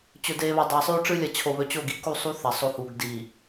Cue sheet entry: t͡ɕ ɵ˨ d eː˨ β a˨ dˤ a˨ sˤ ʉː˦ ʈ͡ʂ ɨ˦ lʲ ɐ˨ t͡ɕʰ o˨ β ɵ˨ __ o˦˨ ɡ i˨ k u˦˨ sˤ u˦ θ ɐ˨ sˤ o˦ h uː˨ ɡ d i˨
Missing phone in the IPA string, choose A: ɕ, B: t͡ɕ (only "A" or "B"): B